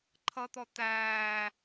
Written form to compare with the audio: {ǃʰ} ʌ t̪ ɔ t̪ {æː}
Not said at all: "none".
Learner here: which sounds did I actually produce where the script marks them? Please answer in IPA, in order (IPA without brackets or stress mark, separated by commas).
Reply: ǃʰ, æː